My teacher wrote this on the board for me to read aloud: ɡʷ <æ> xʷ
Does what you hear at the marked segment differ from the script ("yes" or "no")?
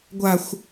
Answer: yes